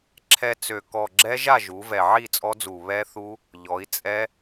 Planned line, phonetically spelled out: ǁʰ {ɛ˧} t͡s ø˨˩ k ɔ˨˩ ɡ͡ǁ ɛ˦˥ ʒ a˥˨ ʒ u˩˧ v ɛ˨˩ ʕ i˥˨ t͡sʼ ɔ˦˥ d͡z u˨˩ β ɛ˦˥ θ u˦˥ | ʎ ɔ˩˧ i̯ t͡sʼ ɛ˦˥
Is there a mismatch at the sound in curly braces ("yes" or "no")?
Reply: no